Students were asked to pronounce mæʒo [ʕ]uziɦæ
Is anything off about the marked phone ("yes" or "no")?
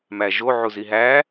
no